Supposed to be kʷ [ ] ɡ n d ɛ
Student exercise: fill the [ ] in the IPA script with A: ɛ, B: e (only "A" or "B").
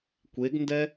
B